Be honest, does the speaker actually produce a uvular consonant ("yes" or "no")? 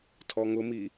no